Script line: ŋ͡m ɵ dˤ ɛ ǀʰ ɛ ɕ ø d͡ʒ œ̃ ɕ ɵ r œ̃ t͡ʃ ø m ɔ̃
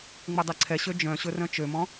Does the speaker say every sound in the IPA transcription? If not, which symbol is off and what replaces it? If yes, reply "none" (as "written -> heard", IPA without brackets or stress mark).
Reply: none